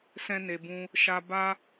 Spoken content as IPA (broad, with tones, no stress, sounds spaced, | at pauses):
s ɛ̃˧ n e˨ b ũ˧ | ʃ a˧ b a˦